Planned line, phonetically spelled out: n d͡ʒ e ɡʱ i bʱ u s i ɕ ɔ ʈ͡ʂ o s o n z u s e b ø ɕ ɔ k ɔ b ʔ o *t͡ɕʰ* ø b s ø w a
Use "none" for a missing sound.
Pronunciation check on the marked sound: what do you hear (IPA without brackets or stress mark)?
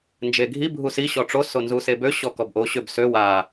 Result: ɕ